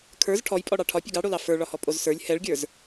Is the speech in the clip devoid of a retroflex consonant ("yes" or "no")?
no